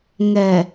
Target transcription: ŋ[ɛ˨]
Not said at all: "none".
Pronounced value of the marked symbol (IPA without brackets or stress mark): ɛ˨